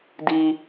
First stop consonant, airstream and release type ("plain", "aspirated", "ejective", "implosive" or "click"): plain